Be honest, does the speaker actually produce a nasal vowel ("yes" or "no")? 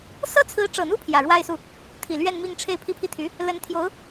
no